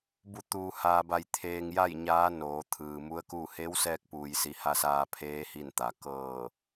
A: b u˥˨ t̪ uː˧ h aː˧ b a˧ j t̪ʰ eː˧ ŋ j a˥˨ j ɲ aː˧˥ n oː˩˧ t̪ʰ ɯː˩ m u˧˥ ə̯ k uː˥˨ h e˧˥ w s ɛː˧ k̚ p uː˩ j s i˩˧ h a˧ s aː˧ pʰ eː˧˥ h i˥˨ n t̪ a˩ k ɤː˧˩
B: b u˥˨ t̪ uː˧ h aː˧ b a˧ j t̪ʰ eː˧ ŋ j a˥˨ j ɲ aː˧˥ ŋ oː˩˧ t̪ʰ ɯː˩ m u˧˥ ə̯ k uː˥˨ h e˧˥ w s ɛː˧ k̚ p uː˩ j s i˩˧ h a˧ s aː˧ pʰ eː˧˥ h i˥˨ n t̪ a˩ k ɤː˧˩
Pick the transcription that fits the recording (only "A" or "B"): A